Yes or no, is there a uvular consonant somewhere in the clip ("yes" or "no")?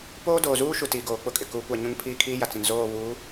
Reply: no